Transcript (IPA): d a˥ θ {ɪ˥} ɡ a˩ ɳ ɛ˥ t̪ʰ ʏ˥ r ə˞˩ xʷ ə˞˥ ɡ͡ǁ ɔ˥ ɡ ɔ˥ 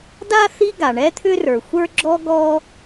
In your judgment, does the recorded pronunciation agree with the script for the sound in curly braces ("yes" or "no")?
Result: no